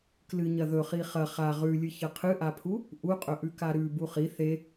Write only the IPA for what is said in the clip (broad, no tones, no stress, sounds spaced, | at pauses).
k l ɨ ɲ ɐ ð ɵ χ i χ ɐ χ a ʁ ʉ lʲ ɨ ç ɐ qʰ ɨ ʔ a pʰ u | ʔ u qʼ ɵ ʔ ʉ k a ɾ ʉ b u χ i θ e